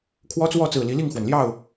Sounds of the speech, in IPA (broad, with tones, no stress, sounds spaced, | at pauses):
kʰ w ɔ˦ t͡s w ɔ˥˨ t͡s ɹ̩˨˩ l i˨˦ l i˥˨ ŋ x w ə˩ n l j ɑ˥˨ ʊ̯